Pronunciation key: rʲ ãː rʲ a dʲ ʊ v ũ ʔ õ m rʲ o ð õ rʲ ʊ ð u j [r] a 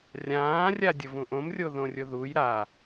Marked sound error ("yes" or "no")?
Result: yes